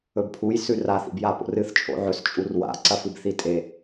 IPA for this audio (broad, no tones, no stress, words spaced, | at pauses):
ɵbpʰuj sʉraθ ḭbjapo̰rɨθ t͡ʃʼo̰ʕɵs t͡ʃʼurwa̰ ǀɐfɨbθitʼe